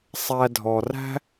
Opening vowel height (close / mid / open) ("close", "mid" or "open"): open